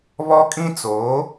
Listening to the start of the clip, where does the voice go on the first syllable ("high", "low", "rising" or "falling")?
high